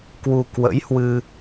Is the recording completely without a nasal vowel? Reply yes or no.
yes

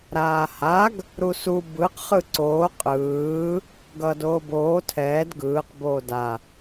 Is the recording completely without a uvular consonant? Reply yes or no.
no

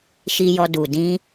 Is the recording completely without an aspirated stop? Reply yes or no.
yes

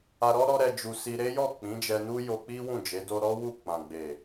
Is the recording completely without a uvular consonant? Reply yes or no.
yes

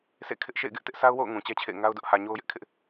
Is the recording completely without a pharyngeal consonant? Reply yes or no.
yes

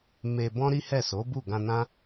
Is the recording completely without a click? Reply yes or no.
yes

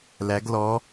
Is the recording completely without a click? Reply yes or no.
yes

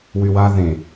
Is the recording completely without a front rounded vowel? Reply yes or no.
no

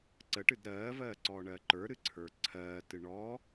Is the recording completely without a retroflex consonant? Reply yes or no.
no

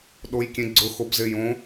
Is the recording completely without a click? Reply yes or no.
no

